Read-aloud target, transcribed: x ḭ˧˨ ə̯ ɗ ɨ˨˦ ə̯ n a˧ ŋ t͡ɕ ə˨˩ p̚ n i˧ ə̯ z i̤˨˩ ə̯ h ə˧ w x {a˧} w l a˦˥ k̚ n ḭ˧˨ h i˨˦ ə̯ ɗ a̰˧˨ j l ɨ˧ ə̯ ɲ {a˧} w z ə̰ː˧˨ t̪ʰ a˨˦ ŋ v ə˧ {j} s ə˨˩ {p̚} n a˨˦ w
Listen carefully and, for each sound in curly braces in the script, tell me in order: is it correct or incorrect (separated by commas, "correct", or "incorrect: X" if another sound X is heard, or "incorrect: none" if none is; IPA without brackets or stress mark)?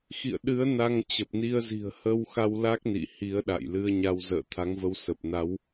correct, correct, incorrect: w, correct